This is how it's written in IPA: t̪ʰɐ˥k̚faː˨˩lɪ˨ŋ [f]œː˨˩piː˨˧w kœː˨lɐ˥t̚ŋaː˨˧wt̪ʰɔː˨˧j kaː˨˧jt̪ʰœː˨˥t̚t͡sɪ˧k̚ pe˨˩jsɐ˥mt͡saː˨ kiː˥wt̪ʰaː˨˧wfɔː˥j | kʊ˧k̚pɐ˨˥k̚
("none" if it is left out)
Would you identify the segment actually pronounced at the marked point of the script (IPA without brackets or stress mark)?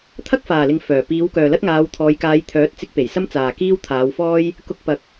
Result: f